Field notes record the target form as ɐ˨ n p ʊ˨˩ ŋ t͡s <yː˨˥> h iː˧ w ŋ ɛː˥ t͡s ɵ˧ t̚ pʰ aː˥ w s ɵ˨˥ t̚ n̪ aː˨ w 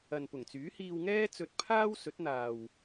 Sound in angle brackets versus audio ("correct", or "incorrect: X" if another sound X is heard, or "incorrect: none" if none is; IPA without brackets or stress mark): correct